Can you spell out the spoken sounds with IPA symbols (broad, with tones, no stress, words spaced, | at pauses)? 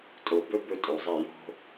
tʼo˨ bɵ˦ bɵ˦tʼo˨zˤe˦˨ jo̤˦